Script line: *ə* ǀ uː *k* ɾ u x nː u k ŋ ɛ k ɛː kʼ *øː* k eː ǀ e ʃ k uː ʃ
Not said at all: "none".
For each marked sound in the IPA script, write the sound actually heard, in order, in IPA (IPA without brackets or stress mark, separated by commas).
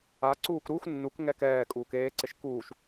a, k, uː